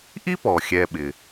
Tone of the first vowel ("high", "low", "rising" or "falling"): high